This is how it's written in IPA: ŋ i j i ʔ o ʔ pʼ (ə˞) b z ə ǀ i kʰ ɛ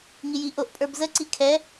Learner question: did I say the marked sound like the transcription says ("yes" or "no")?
yes